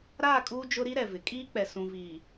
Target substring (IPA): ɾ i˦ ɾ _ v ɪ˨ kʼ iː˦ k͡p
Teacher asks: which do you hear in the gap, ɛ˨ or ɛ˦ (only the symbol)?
ɛ˨